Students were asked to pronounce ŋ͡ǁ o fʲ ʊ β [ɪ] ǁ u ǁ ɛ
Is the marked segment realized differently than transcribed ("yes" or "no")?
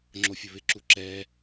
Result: no